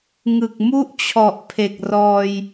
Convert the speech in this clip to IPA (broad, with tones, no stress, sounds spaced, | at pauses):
ŋ ɯ˨˩ k̚ m u˥˩ ʔ t͡ɕʰ ɔ˨˩ ʔ pʰ e˨˩ k̚ r ɔː˧ j